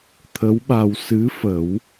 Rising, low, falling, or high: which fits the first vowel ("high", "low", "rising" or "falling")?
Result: rising